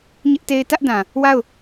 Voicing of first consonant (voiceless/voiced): voiced